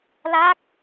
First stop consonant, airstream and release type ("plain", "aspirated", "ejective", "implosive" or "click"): plain